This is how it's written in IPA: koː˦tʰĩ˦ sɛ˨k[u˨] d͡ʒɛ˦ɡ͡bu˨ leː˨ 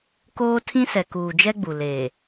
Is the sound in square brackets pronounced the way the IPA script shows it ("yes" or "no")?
no